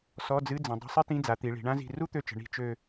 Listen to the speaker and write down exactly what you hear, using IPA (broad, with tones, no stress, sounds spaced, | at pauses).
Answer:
s ɔ˧˥˧ d͡z ɨ˧˥˧ d͡z ə̃˩˧ dˤ ə̤˧˥˧ sˤ ɨ˥ t ĩ˧˥˧ d͡z a˩˧ t̪ i˩˧ ɭ i̤˩˧ ɳ ã˥ z i̤˦˨ r u˥ t̪ ø˦˨ t͡ʃ ə̤˩˧ ɳ i̤˦˨ t͡ʃ ø˦˨